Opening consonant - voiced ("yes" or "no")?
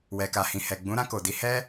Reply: yes